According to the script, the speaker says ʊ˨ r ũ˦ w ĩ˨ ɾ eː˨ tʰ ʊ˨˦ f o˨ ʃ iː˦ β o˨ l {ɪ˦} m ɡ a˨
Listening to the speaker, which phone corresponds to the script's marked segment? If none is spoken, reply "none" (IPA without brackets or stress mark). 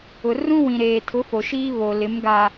ɪ˨˦